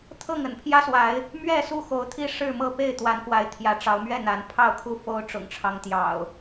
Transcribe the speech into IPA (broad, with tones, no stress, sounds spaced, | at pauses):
t̪ʰ ɤ˥˨ ŋ ə̰˨˩ n pʰ j ä˦ s w a˨˦ ɪ̯ | m ɥ ɛ˥˨ s u˥˨ x o˨˦ ʊ̯ t̪ʰ i˥˨ ʂ ɻ̩˥˨ m ɤ˥˨ p e˥˨ ɪ̯ t̪ w a˨˦ n k w a˨˦ ɪ̯ t̪ʰ j ä˨˦ ʈ͡ʂ ɑ˨˦ ʊ̯ m ɥ ɛ˥˨ n̪ a˨˦ n pʰ ɑ˥˨ ʊ̯ kʰ u˥˨ f o˦ ʊ̯ ʈ͡ʂ ʊ̰˨˩ ŋ ʈ͡ʂʰ ɑ˦ ŋ t̪ j ɑ̰˨˩ ʊ̯